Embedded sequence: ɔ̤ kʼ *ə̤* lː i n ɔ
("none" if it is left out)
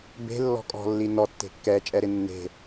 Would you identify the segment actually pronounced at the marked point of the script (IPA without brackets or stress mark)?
ɔ̤